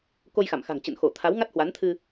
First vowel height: mid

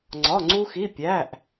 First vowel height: low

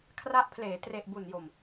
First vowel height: low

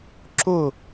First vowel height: high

